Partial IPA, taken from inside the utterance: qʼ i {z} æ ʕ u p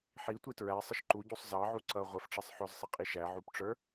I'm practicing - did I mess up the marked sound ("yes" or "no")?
yes